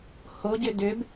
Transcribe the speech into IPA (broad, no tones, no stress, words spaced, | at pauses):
hoɟʏ dʏb